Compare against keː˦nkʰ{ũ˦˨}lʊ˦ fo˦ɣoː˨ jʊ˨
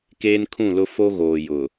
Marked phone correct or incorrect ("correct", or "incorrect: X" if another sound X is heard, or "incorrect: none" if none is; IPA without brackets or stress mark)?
correct